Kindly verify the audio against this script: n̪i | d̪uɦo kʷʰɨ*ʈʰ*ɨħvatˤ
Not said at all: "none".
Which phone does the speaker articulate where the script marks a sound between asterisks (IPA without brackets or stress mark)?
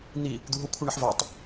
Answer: ɳ